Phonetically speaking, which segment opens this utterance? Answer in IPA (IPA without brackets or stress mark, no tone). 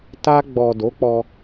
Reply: t